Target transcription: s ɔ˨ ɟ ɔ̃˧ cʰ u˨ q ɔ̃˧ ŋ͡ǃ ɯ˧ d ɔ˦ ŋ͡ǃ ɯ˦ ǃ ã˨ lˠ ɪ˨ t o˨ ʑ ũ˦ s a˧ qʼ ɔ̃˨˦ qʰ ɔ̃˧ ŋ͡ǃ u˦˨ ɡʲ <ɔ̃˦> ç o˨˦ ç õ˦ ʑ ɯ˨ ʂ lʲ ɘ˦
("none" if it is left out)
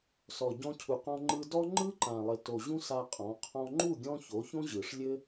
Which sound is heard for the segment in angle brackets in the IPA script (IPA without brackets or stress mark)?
ɔ̃˦